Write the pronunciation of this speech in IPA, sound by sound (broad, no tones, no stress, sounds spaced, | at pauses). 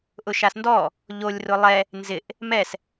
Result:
ʔ ʊ ʃ a s n d ɔ | ʎ o lʲ r ʊ lˠ ɛ | n z ɪ ʔ | m ɛ s